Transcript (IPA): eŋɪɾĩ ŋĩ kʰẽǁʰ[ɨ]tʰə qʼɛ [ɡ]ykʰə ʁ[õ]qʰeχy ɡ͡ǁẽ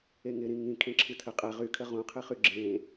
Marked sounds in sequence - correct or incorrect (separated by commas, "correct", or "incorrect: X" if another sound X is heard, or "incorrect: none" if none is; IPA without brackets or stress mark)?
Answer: correct, incorrect: ʁ, incorrect: ũ